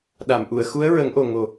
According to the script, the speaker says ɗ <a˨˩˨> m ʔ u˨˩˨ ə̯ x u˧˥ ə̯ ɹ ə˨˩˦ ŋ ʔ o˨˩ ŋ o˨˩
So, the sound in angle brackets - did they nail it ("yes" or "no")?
yes